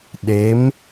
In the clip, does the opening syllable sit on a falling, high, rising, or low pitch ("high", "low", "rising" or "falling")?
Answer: rising